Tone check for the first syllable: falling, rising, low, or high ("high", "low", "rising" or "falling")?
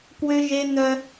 high